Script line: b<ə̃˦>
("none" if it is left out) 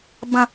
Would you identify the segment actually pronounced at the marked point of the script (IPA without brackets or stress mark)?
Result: ə̃˦